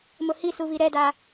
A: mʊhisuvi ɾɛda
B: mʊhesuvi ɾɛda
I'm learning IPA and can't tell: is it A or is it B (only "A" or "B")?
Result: A